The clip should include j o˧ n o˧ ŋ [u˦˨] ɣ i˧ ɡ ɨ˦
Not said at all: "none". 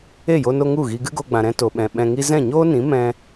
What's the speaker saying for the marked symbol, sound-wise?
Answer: u˦˨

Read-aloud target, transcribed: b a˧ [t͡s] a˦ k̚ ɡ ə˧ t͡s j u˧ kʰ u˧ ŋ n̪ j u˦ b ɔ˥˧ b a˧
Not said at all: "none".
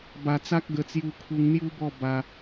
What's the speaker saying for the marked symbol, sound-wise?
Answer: t͡s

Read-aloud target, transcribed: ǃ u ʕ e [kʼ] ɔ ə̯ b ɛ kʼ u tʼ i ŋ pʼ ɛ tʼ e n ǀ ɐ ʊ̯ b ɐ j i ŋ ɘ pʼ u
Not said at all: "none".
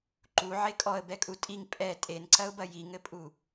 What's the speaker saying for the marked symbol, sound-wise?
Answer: kʼ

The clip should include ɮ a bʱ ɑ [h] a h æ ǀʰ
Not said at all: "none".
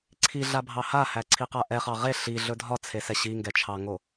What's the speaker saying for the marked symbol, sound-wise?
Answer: h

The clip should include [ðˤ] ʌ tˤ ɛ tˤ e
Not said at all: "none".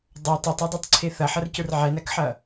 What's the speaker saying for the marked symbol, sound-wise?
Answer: dˤ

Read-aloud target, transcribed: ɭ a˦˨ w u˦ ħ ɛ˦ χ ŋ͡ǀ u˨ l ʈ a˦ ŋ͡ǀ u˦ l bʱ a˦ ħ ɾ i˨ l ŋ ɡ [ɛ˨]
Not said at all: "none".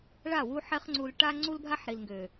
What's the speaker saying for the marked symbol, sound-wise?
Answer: ø˨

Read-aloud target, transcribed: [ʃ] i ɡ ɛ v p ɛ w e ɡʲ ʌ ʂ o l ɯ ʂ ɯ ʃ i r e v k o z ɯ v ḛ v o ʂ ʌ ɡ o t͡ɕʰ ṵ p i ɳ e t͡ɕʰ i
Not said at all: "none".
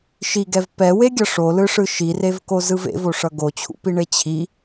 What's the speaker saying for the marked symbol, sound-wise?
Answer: ʃ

